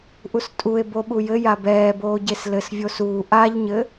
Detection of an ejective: present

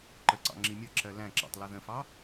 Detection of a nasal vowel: present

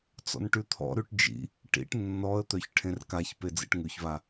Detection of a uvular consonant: absent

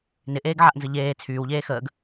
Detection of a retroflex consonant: absent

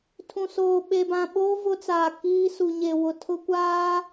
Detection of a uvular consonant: absent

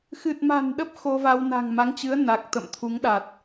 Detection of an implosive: present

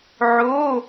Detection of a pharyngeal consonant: present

